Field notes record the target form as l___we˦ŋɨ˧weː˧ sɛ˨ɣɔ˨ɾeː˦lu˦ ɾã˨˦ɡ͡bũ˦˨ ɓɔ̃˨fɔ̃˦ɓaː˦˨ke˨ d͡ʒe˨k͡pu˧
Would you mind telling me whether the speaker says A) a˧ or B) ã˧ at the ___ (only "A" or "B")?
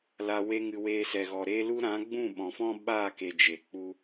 A